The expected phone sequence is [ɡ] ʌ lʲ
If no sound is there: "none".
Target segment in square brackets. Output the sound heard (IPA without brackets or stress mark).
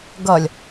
ɡ